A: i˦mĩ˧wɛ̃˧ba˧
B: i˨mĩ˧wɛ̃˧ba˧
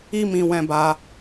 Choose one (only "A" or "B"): A